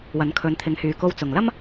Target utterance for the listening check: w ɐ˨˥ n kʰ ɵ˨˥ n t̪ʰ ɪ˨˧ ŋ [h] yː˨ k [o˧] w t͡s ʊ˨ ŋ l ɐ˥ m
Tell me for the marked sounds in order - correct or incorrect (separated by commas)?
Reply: correct, correct